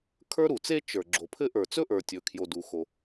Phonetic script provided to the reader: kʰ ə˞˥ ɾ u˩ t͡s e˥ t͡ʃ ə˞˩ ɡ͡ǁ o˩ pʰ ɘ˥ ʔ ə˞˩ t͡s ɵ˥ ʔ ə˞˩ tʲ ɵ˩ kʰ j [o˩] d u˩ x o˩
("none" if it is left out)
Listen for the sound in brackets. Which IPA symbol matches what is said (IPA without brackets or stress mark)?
o˩